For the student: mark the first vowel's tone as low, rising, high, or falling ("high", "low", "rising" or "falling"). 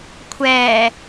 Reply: low